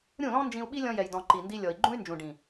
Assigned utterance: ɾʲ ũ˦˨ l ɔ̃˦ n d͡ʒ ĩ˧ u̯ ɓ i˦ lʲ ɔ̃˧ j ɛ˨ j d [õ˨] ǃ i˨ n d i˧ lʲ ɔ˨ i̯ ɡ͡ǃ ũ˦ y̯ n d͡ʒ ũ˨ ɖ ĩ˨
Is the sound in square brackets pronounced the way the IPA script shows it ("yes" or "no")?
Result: no